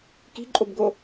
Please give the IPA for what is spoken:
ki̤ǃʼobɡo

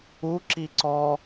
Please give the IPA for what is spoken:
u ǁiǀɔ

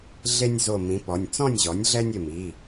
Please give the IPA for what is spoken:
ɮe˦nʲzo˧˩ mĩ˩˥pɔ˩˧˩nʲ t͡sɔ̃˥˨nʲʑɔ˩˥nʲɮɛ˦nʲ ɪ˧˩mi˩˧˩

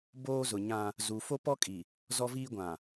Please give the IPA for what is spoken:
boː˦zʊ˨ɲã˦ | zu˨fo˦pɔ˦kʼi˨ | zɔ˦viː˦ɡʷã˨

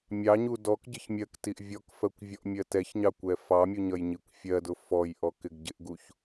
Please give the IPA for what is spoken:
mʲɑɲu dɔkɟɪç mʲɜktiʔ vʲɔkfɜkʷ vʲɔʔmʲɜtɛçɲɑ kʷɛfɑmʲu ɲʌjɲikʷfʲɜdʊ fɔjʔɔ kɪɡɟɪʔɡuç

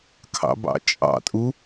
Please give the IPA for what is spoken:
kʰɑ̰bɑ̰t͡ʃʼɑ̰tʼu

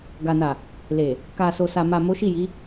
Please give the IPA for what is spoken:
ɡa˨na˨ | le˨ | ka˨so˨sa˨ma˨ mo˨˦ʃi˦˨ji˨˦

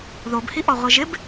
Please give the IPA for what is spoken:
ðobhiʔɔʁʷe ʒɪb

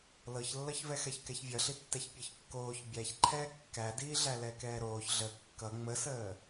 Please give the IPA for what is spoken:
lɤçlːʌçvɛxɛç kɛçvʲʌɬitːɛç pʲɤçkːoːç bʲæçǃʰɛː kːædiːɮæ lɛkɛːɾoːç ɮə kːʌ ŋ͡məsəː

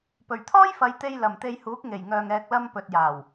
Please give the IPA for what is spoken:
pɵ˨˩ɥt̪ʰɔː˥jfɐ˨˧jt̪e˧j lɐ˨˩mt̪e˧jhuː˨˥k̚ ŋe˨˩jŋœː˨ŋ ɛː˨k̚lɐ˧m pɵ˨t̚jaː˨˩w

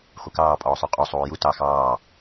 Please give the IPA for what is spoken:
χʷəkɑːpʼɔːsˤʉ qʼo sˤuːju tɑ xɑː

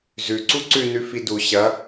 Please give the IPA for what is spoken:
zʉǀu ǀʉnʉ fidu ɕɐ

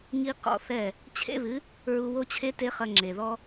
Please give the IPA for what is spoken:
ŋi˦qɔ̰˧ θɛ˦˨ | t͡ɕʰḛ˦βɨ˨˦ | ɹu˧wo˦t͡ɕʰe˦ te˦χɐ˧ ŋ͡ǁe˨ðɔ˦

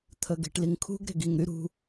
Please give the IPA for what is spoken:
t̪ʰəɡe̤ʈliŋkʰṳɡ ɾe̤ɡiŋɾy ɾṳ

